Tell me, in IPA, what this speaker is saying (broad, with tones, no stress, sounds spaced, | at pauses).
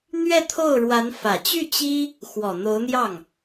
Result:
n̪ ɥ ɛ˥˧ t̪ʰ o˥˩ ʊ̯ ɻ w a˧˥ n f ä˨˩ t͡ɕ y˥˩ t͡ɕ i˥ | x w ɔ˨˩ n̪ o˧˥ ʊ̯ n̪ j ɑ˥˩ ŋ